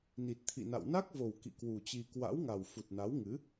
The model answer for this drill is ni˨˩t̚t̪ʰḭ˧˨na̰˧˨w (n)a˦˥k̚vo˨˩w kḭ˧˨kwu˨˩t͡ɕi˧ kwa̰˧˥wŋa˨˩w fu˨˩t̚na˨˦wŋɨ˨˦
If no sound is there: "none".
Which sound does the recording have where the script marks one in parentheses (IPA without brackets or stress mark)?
n